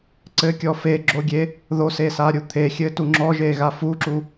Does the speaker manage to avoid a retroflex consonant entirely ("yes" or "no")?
yes